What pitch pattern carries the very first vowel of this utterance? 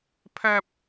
high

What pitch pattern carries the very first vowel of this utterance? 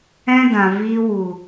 high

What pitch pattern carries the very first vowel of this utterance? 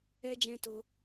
high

